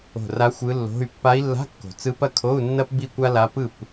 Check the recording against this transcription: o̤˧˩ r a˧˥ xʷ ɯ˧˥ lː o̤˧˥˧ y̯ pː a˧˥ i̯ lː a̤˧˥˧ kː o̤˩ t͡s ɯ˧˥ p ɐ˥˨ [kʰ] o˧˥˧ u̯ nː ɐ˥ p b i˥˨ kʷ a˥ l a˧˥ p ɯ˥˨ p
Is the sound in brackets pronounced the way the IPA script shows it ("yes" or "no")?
yes